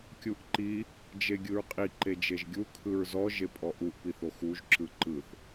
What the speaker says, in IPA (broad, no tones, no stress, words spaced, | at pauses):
kʲuʔǃi | d͡ʒeɡʲɯɹqʼi ǃed͡ʒeʒɡʲu kʰɯɹzɔ ʒepʼɔʔuʔ piθoxuʒ ǁɯǃɯθ